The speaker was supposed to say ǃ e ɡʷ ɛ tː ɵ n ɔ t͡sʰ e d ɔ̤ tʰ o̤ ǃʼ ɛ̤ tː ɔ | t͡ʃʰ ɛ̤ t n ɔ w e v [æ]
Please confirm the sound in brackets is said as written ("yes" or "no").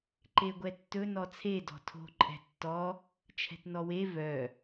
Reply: no